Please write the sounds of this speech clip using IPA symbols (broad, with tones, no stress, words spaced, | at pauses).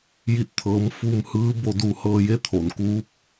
ji˧˩t̚t̪ʰɤː˩˧m fu˧mhɯː˧˥ bo˧du˧ hɤː˧je˧˥t̪ʰo˩n kuː˧˥p̚